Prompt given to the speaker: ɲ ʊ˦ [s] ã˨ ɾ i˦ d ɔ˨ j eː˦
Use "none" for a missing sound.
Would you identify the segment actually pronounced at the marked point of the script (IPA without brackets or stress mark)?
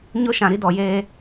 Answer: ʃ